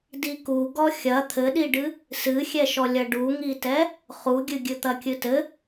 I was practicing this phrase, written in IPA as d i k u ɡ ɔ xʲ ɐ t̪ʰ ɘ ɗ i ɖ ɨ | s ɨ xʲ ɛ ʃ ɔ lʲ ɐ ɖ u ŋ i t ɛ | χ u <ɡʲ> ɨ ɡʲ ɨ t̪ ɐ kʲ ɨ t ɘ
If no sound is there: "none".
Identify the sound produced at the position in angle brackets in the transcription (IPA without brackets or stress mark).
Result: ɡʲ